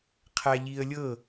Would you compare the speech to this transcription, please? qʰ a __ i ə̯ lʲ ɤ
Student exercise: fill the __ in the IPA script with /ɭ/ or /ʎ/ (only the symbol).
ʎ